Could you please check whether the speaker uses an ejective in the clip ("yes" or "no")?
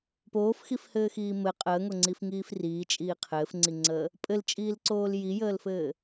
yes